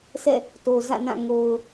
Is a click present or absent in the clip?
absent